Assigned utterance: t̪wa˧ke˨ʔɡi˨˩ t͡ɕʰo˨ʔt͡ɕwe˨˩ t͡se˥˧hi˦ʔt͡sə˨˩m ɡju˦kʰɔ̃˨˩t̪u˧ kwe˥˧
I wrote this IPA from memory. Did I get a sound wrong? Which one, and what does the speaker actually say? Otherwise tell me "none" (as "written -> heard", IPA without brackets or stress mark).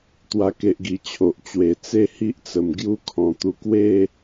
none